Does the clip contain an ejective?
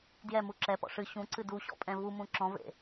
yes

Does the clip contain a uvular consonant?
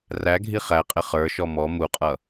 yes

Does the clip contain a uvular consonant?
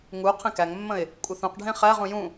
yes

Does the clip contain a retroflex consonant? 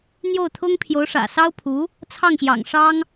yes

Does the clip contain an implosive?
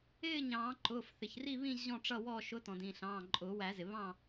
no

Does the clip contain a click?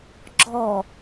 yes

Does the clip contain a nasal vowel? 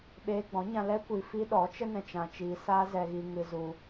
yes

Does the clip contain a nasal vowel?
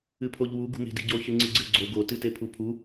no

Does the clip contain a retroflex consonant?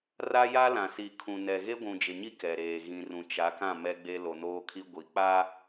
no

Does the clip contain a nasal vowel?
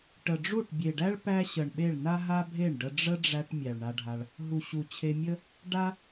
no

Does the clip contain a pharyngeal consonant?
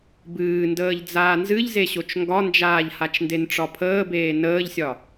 no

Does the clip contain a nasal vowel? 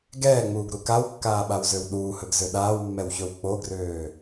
no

